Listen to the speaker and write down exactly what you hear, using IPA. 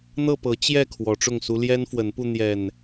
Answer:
n̪ ɤ˥˨ p ɤ˨˦ t͡ɕ j ɛ˥˨ kʰ w ɔ˨˦ ʈ͡ʂ ʊ˥˨ ŋ s u˦ l j ɛ˦ n f w ə˨˦ n p u˧ n̪ j ɛ˨˩ n

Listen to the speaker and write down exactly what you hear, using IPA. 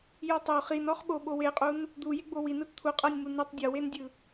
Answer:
j o tˤ o χ i n ɔ χ ɓ o ɓ o w e qʼ u n | d̪ u j e ɡ͡b o w i n ɯ t t̪ʰ u qʼ ɤ nʲ m u n ɯ tˤ dʲ ɔ w e n dʲ ɯ

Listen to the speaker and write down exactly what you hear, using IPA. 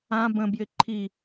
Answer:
ã b ə̃ b j ɪ ǃʰ i

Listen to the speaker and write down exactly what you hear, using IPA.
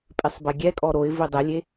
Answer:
pʼ i sˤ b ɛ ɡʲ ɛ kʼ ɔ ɾ o ɪ̯ v i dˤ e lʲ e

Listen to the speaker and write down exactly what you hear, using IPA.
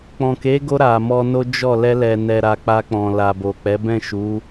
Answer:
k͡p ɔ̃˨ k e˨˦ ɡ o˧ ɾ a˨ m ɔ˧ n o˦ d͡ʒ ɔ˦˨ l ɛ˧ l ɛ˨ n ɛ˨ ɾ a˨ k͡p a˧ k͡p ɔ̃˨ l a˨ b o˨ k͡p ɛ˨˦ b ɛ̃˦˨ ʃ u˨˦

